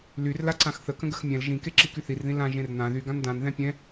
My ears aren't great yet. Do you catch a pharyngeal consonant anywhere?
no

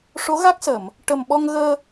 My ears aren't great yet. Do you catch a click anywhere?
no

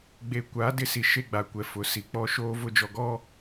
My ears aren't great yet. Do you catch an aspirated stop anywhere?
no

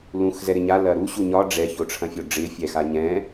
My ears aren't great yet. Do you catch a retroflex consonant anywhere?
yes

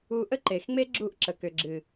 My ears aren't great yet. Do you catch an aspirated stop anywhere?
no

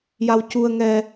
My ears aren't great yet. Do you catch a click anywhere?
no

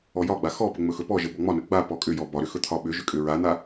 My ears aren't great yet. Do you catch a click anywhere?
no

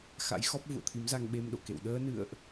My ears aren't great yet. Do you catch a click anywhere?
no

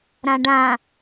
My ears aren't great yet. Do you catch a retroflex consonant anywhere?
yes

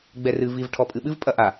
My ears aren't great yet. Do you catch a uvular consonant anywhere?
no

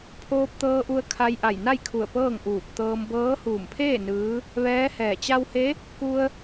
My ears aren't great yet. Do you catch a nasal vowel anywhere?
no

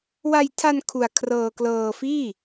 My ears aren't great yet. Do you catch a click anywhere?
no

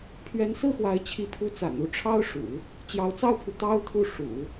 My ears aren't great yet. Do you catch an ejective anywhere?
no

